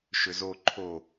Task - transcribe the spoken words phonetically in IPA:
ʃ ʏ z o ǃʰ o

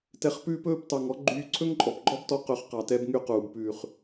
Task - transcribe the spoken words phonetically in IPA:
t ɛ˨ χ p ʉː˧ p ɵː˦˨ p t ɑ˨ ŋ ɔ˦ ɡ͡ǃ yː˧ ǀʰ ɵ˦ ŋ ǃʼ ɔ˨ p ɡ͡ǃ ɔ˦ b t ɔ˧ q ɵ˨ χ q ɑ˨ t ɛ˧ b ŋ y˧ q uː˨ b p ʉː˨ χ

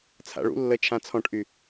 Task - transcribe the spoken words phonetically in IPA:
t͡sʰ a̰ ɭ ṵ lː ə t͡ʃʰ ã t͡sʰ ɔ̃ ʈ ʔ y

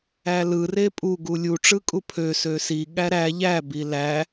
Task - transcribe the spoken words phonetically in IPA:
æ l ɯ r e pʼ u ɡ u lʲ u ʈ͡ʂ ɯ kʼ u pʰ ø s ø s i ɠ æ ɾ æ ʎ æ b i l æ

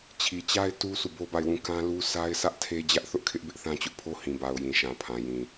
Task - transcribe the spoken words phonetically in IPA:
t͡ɕʰ i˨ t͡ɕ a˦ ɪ̯ t u˦ sʰ u˦˨ b o˦ b a˦˨ ɪ̯ w ũ˦˨ k ã˦ l u˦ s a˦ ɪ̯ sʰ ä˦ ʔ tʰ e˦ d͡ʑ ä˦ ʔ θ ʊ˦ ʔ kʰ ɪ˦ ʔ b ɪ˦ ʔ θ ã˦ t͡ɕ ʊ˦ ʔ pʰ o˦ h ĩ˨ b a˨ ʊ̯ j ĩ˨ ʃ ã˨ pʰ ã˨ j ĩ˨

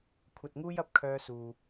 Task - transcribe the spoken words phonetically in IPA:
kʷʰ ɐ˧ t̚ ŋ uː˥ j ɐ˧ p̚ kʰ œː˥ s uː˧

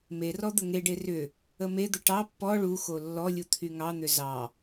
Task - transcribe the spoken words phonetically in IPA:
m e r ɔ d̪ ə ŋ e ɖ e r ʏ | ə m e d̪ ə ʈ ɑ pː ɔ ɭ u x o lː ɔ lʲ u t̪ʰ y ŋ ɑ n̪ ʏ z ɑ

